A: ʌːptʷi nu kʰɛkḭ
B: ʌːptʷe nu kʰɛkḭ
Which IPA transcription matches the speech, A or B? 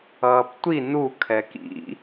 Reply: A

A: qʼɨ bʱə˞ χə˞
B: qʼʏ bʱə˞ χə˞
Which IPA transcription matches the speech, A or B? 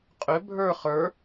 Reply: B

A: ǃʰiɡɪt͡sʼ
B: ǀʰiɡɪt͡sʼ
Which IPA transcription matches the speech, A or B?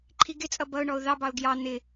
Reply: A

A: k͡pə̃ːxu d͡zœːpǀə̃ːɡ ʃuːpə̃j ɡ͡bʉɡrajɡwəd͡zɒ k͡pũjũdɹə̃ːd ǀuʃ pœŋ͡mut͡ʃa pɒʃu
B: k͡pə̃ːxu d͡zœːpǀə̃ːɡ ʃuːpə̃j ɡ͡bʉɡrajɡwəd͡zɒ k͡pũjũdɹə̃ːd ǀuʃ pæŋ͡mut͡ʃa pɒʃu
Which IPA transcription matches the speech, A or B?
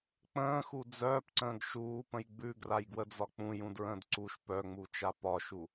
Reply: A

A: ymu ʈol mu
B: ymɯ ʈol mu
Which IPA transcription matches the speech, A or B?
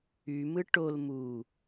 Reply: B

